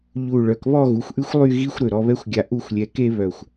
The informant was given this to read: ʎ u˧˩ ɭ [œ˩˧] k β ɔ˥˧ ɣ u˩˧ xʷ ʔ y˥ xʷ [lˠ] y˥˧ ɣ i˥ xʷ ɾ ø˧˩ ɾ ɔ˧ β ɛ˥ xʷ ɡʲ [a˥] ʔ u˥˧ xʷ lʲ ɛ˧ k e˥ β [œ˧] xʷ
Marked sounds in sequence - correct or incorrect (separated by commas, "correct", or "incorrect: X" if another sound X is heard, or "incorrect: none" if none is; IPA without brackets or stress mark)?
correct, correct, correct, incorrect: œ˧˩